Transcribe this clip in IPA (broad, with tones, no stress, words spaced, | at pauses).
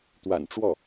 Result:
t̪wa̰˨˩nʈ͡ʂwɔ˥˩